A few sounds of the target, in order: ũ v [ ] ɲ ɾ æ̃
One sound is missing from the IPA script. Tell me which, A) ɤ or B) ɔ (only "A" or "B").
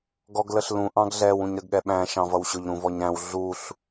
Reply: B